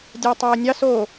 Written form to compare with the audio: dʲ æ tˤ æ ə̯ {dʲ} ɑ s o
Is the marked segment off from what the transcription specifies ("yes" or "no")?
yes